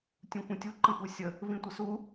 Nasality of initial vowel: nasal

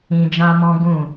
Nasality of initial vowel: nasal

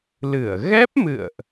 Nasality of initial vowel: oral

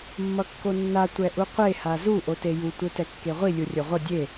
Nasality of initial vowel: oral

